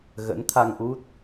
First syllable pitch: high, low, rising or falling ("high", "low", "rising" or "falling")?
rising